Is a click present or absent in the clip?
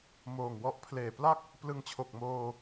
absent